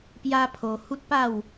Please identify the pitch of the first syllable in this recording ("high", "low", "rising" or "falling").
high